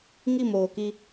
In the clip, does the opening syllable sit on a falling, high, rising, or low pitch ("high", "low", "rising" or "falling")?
falling